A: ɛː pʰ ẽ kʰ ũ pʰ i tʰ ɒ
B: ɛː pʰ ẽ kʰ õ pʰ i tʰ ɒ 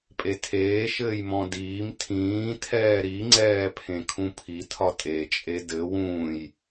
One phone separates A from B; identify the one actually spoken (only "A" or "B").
A